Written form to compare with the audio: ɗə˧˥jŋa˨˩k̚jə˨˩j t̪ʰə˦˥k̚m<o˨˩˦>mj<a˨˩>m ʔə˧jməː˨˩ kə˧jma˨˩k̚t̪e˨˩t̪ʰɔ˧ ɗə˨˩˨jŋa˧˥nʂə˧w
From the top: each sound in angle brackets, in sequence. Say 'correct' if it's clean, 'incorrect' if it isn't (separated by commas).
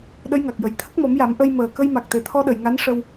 incorrect, incorrect